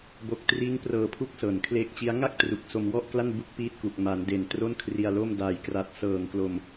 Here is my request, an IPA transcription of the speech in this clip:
bo˦˥k̚ triː˦˥ŋprɤː˧pʰu˦˥k̚ sɤː˨˩n kʰleː˦˥k̚t͡ɕi˦˥a̯ ŋa˥˩k̚ tru˨˩k̚so˧mwɔ˥˩ʔkla˥˩n bu˥˩k̚piː˥˩t̚ku˨˩k̚ ma˩˦nde˨˩n tro˥˩nkʰri˧a̯lo˥˩m daː˨˩jkra˨˩t̚sɤː˨˩ŋklo˧m

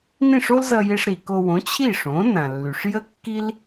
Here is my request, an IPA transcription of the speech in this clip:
nĩ˥˩ʂo˥lzʌ˧je˧ʂ ɾi˩ko˧ wõ˩˥ t͡ɕʰi˥˩ʂõ˩˥nã˩lːy˩ʂ jə˥kːi˥l

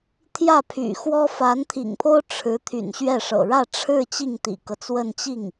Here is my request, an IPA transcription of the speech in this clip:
t̪ʰjä˥˩pʰy̰˨˩xwɔ˥ fa˧˥nt̪ʰḭ˨˩ŋpʰo˥ʊ̯ ʈ͡ʂʰɻ̩˧˥ t̪ʰy̰˨˩nɕɥɛ˥˩ʂɤ̰˨˩ ɻä˥˧ʈ͡ʂʰɻ̩˥˧ t͡ɕi˥˩ŋt̪ḭ˨˩kɤ˦t͡swə˥˧n t͡ɕi˥˩ŋ

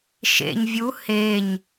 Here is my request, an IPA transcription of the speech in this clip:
ʃḛɲ vʲu heɲ

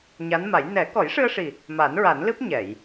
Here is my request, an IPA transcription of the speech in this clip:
ɲa˧˥nma˨˩˦j nɛ˨˩˦ kɔ˨˩˦jʂɨ˧ə̯ʂi˨˩ | ma˨˩˦nɹa˨˩˦nlɨ˦˥p̚ ɲɛ˨˩˨j

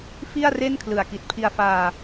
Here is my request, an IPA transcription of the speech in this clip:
fi˥˩a̯ re˥˩n kʰlɯ˨˩a̯ki˨˩t̚pʰi˧a̯faː˧

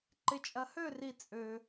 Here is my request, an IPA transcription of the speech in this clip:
ǃɪ˧t͡ʃʼɐ˧hø˥˧ri˧ t͡sʼø˧

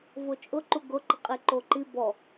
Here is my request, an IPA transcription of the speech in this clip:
vot͡ʃʼʊ ǃuɡʊǃɪ qʼeǃoǃi bɔ

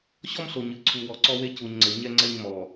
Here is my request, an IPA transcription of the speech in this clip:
ɕɔ˦mɬo˨ɲɨ˨˦ ǀʰu˨wɔ˨ ǀɔ˦we˦ cu˨ɲŋ͡ǀe˨ɲɛ˦ ŋ͡ǀɛ˦ɲmɔ˨

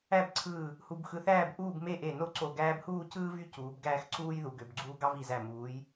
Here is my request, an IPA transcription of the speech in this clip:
æ˥˧bǀʰɯː˧˩ | hu˧bxɯ˧θæː˥˧b ʔuː˥˧b me˥˧ʔe˧˩no˥ ǀo˧˩ɡæː˥b huː˥˧cɯː˥ vy˥ cuː˩˧b ɡæː˥˧x ǀuː˥jðu˩˧ɡø˩˧b ɡ͡ǀuː˥ ɡɑ˥vi˧˩zæ˧˩ muː˩˧j

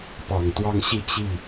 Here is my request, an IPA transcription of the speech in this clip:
pɑ˨˩ŋt̪wɑ˥˧ŋɕi˥˧ t͡ɕi˥˩

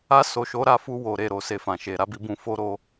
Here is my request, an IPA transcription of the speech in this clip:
a˧so˨ʃo˨˦ ɾa˧fu˧ wo˨ɾe˨ɾo˨ se˧fã˨ʃe˨ ɾa˨˦bi˧bũ˧ fo˦ɾo˦

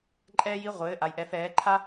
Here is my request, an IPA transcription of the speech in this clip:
ǃʼɛː˥ji˧˥˧ ʁʷɘː˧˥˧ ʔa˧jʔɛ˧˥fɛː˧˥ ǃʰa˥

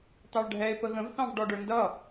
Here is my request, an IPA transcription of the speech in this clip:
t̪ɑɭɖʱɛe̯ pəɣə̃v θɑ̃vɖɔɖə˞ndʌ

